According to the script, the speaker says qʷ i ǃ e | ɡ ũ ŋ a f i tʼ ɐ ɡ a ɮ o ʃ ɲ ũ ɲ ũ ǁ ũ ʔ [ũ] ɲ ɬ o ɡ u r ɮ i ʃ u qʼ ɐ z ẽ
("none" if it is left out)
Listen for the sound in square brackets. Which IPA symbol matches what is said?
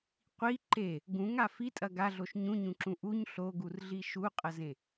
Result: u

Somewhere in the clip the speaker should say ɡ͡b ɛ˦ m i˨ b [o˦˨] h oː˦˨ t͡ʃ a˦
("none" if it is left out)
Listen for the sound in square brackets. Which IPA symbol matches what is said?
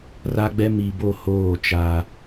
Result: o˦˨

